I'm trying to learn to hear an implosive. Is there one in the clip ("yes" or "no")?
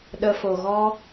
yes